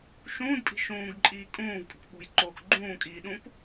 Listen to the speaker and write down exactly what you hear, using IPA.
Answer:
ʃũːdpʼi̤ ʃũːɡǃʼiː kʼũːv kʼṳkɓo̤jǃoːk ɡ͡ǃũːkʼiː ɗũk

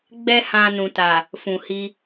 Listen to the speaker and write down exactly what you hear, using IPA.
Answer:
ɡ͡bɛ˦hã˧nũ˨ta˨ | fũ˨hi˧

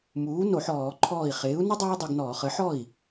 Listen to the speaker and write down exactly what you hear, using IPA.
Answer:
muː˩˥no˧˩˧ħ ɔː˧˩˧ ǃʰɔː˧˩i̯χɪː˩˥u̯nə˥ dˤəː˥i̯dˤɪ˧ɡ nɔː˧˩˧χə˩˥ ħɔ˥˩i̯

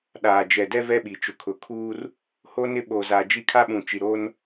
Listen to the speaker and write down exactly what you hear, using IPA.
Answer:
ɗaː˨d͡ʒɛ˨dɛ˦ vɛ˦ɓi˨t͡ʃʊ˨kʰʊ˨ kʰuː˦r | ho˦nɪ˦ ɓoː˨za˨d͡ʒi˦kʰa˦ ɓũ˨t͡ʃi˨ɾoː˦n

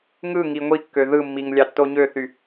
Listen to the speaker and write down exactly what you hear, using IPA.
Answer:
ŋɯ ŋiŋʷikːø ðɯmːiŋ lʲɑtːoɲøθy

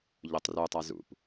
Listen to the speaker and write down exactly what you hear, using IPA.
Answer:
ʎotˤrutˤa zṵp

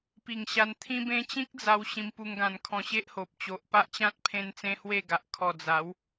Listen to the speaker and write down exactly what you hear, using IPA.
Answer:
pi˨˩ŋɕa˧n t̪ʰĩ˦bẽ˦ t͡ɕĩ˦k̚d͡za˧w ɕĩ˧mpu˧ŋɡã˧n kʰɔ̃˧ɕe˦ʔho˨p̚ t͡ɕo˨ʔpa˦ʔt͡ɕã˦t̚ pʰẽ˦nt͡sẽ˦hwe˥˧ɡa˨ʔ kʰɔ˨˩d͡za˨˦w

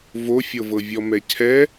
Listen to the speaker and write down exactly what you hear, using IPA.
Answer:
vofʲɤvɤvʲɔ mɛcʰɛ

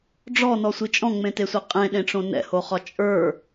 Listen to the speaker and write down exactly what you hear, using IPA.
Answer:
ɖ͡ʐɔnɔsʷi t͡ʃʼɔ̃ŋ͡mẽtesʷɛ qʼẽɗẽʈ͡ʂõ nɛ̰hoχɒ t͡ʃʼə˞

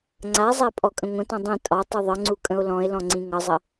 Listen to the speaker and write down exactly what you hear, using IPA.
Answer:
ŋ͡ǀazˤa pʼɔkʼə̃ŋʷə̃tɔ̃ dˤĩ tʼɒ tˤuðˤʌŋ͡ǀu kʼə̃o̯lɔ̃e̯lɔ̃ ŋ͡ǀĩŋʌzˤə

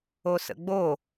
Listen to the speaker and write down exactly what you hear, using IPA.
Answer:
osə̰ɡ͡bo

